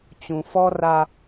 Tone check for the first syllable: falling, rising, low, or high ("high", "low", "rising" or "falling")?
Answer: low